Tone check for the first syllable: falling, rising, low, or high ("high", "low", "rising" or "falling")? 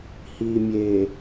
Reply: low